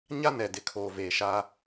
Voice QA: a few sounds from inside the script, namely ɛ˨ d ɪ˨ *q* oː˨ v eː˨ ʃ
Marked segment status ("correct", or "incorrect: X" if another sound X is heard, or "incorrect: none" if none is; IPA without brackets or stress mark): incorrect: kʰ